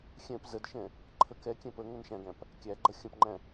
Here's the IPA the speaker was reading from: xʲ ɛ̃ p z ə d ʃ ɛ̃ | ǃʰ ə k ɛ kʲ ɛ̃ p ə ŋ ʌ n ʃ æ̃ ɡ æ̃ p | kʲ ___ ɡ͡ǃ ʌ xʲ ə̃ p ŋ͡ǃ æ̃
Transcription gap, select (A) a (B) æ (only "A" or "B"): B